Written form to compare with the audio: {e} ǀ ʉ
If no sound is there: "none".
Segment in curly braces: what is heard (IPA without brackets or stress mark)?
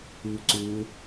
y